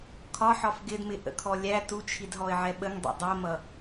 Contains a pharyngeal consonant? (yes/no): yes